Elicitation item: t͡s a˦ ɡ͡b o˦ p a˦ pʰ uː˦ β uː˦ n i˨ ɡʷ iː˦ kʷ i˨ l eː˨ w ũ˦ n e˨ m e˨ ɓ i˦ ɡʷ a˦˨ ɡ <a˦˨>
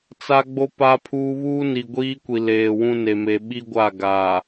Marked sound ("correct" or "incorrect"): incorrect